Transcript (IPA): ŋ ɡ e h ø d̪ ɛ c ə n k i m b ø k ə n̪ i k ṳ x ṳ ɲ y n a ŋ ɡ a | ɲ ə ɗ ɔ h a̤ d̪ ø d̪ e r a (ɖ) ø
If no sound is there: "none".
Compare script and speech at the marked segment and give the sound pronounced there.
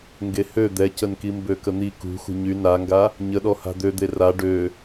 ɖ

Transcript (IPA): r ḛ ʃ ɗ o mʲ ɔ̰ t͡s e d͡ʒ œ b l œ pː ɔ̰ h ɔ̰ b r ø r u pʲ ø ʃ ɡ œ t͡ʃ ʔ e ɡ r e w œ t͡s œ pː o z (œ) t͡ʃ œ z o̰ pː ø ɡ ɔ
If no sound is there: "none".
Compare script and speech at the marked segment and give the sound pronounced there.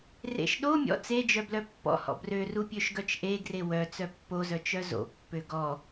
œ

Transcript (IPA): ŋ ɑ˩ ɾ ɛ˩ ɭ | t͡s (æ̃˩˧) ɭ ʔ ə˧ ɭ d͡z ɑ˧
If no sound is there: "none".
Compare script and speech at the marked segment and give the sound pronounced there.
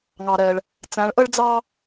æ̃˩˧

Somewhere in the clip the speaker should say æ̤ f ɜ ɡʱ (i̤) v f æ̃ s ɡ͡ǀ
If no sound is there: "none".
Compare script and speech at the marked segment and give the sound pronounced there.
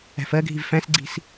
i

